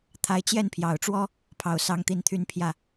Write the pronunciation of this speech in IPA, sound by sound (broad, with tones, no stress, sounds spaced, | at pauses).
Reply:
t̪ʰ a˧˥ ɪ̯ t͡ɕ j ɛ˥˩ n pʰ j ɑ˨˩ ʊ̯ ʈ͡ʂ w ɔ˥ | pʰ ɑ˧˥ ʊ̯ s ɑ˥ ŋ t̪ i˥ n t̪ʰ y˥ n pʰ j ä˥˩